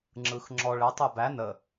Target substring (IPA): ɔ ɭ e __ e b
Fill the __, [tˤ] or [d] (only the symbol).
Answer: tˤ